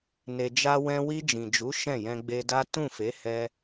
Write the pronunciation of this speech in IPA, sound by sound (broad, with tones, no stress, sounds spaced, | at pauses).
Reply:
n e˧ d͡ʒ a˦ w ɛ̃˧ w i˧ d͡ʒ ĩ˨ d͡ʒ u˨˦ ʃ ɛ̃˦˨ j ɛ̃˧ ɡ͡b e˧ d a˦ t ũ˦˨ f e˨˦ h ɛ˧